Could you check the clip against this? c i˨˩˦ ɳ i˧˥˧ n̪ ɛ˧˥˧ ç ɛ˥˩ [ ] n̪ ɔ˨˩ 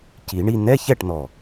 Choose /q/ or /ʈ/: ʈ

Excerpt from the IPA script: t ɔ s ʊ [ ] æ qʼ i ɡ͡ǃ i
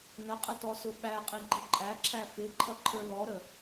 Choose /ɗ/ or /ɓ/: ɓ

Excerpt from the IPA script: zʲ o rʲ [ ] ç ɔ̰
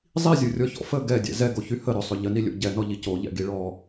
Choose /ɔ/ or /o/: ɔ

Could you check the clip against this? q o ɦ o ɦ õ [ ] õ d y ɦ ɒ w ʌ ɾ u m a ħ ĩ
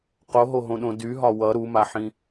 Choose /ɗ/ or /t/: ɗ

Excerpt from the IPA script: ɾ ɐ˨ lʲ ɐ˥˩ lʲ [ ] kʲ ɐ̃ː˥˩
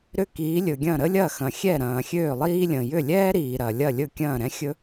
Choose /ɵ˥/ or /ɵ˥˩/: ɵ˥˩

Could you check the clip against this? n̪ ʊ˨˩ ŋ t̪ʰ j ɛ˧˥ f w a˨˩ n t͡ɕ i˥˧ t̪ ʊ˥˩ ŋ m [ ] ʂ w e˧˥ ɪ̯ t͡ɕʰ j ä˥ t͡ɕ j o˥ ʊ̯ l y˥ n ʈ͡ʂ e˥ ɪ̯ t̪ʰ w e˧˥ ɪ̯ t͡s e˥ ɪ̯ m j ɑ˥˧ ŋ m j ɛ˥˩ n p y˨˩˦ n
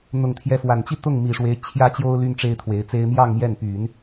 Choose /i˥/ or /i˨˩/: i˨˩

